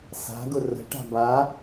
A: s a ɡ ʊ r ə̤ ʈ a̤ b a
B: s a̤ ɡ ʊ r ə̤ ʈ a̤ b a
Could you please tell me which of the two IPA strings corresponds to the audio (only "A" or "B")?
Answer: B